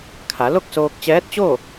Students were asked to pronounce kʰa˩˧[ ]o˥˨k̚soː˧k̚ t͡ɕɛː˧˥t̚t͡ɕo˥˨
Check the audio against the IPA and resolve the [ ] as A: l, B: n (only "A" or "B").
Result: A